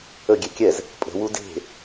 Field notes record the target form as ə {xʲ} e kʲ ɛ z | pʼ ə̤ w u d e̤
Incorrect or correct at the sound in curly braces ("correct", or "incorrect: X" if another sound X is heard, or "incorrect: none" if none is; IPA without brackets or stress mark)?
incorrect: ɡʲ